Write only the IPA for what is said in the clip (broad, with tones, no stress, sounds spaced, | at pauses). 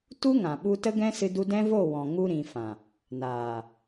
t u˦ ŋ ã˨ ɓ u˧ t ə˦ ɡ ɛ̃˦ s ɨ˦ d u˦ d ɛ̃˦ v o˦˨ w ɔ̃˨ ŋ u˧ ɾ ĩ˨ f ã˨ | n aː˨